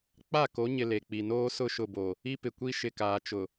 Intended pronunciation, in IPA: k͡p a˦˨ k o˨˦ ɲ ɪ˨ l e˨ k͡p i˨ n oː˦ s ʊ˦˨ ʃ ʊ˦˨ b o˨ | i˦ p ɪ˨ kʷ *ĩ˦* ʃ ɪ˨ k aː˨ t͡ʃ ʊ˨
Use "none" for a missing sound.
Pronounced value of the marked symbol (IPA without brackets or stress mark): i˦